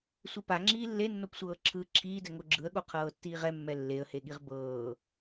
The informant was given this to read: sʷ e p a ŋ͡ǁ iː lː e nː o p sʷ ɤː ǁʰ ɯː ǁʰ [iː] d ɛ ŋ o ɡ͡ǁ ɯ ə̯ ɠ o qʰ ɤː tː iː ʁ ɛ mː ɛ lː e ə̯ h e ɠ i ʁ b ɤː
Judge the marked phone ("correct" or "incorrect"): correct